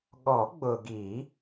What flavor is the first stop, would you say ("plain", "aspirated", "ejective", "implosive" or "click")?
implosive